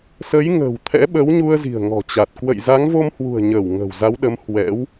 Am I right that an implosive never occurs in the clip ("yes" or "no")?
no